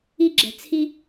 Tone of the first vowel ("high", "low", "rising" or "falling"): high